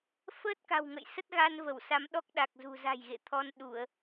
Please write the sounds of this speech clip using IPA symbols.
f əː˦˥ t̚ k a̤˨˩ w ŋ ə̰˧˨ j s ə˦˥ t̚ ɣ a˧ n v ə˧˩ w s a˨˦ m ɗ ɔ˦˥ k̚ ɗ a˨˩ k̚ z ṳ˨˩ z a̤˨˩ j ɣ ḛ˧˨ t̪ʰ ɔ˧ n ɗ u˧˩˨ ə̯

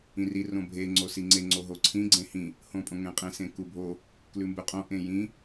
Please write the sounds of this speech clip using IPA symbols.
ĩ r i r õ bʱ e ŋ͡ǀ o s i ŋ͡ǀ e ŋ͡ǀ o ɦ o ǀʰ ĩ ɡ͡ǀ ẽ h ĩ | h õ pʼ õ ŋ ẽ qʼ ẽ s ẽ k u bʱ o | k l ʉ m b ʉ qʼ õ ʔ ẽ j ĩ

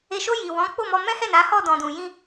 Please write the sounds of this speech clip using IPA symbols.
e˨ ʃ o˧ j i˨ w ɔ̃˨˦ k͡p o˦˨ m ɔ˧ m ɛ̃˦ h ɛ˦˨ n a˨˦ h ɔ˦˨ d ɔ̃˨ d ũ˨ j ĩ˧

